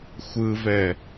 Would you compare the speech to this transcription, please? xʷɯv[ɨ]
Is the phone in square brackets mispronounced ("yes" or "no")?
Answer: yes